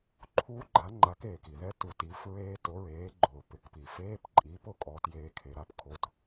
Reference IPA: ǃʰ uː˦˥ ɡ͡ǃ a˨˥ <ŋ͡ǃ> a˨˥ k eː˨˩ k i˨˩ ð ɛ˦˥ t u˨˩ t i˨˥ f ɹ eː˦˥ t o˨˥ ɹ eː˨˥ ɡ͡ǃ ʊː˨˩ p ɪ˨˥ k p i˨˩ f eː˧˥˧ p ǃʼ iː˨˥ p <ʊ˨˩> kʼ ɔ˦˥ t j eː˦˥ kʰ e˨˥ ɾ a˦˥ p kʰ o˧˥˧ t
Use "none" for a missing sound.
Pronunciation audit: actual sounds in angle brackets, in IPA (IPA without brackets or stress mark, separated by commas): ŋ͡ǃ, ʊ˨˩